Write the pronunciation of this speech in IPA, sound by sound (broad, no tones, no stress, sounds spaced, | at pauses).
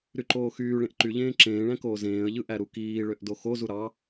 ɾ y ǃ oː x yː ɭ ẽ ʔ ǃ y ʎ ẽː ǁ ẽː ɭ æ̃ k oː z ẽː ə̯ ʎ ɯ ʔ æ ɾ u k iː ɭ ø ʔ d o x o z u ɾ ɑ